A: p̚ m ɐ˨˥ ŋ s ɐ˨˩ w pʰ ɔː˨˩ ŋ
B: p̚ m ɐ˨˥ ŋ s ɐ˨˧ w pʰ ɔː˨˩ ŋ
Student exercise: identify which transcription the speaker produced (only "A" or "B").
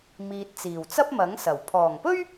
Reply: A